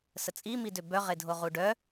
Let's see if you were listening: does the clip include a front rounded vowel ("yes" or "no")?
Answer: yes